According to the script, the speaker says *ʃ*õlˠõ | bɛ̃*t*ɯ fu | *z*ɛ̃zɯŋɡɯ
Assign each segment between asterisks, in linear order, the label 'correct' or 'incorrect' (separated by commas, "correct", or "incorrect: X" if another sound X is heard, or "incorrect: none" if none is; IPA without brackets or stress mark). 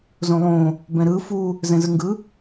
incorrect: z, incorrect: ɾ, correct